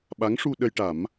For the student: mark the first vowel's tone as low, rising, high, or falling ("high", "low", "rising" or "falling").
rising